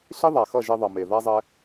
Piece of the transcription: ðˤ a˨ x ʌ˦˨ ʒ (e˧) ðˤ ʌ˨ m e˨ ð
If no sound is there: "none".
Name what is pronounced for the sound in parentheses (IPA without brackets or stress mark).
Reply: e˧